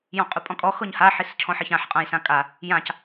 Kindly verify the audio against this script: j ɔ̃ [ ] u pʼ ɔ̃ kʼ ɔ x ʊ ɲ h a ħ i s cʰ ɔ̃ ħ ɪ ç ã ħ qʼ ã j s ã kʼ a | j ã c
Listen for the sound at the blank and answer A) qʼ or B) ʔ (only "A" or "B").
A